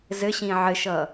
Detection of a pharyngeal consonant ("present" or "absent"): present